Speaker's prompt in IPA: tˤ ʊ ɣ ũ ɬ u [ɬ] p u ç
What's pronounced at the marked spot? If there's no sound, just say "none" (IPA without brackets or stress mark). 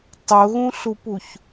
none